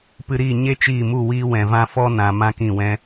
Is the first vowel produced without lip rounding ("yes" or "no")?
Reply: yes